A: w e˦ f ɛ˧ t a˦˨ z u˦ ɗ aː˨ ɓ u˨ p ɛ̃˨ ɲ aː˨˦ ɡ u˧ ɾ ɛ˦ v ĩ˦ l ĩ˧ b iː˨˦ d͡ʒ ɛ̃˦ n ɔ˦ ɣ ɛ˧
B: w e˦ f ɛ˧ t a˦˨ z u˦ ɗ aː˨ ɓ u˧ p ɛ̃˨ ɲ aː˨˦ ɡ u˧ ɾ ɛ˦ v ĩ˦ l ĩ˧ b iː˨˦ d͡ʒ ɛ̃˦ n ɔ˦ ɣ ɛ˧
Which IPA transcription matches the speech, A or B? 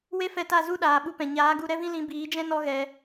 B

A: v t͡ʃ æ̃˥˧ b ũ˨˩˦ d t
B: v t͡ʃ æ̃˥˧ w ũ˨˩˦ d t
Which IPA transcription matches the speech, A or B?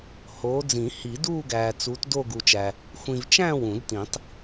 B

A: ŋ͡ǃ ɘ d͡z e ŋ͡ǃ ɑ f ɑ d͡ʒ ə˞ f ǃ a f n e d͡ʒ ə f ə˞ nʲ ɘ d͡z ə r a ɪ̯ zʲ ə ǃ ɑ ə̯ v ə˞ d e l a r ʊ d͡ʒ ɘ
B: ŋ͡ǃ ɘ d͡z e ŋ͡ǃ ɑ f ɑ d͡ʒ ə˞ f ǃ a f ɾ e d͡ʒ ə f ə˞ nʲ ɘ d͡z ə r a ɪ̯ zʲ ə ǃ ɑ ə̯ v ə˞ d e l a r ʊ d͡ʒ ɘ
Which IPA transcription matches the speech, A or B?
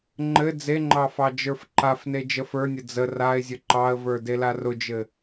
A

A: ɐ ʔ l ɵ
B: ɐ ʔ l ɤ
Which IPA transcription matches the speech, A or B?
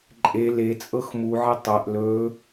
A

